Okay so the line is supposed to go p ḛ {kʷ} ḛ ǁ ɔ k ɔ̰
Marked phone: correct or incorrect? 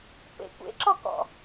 correct